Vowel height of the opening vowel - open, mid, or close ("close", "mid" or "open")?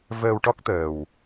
mid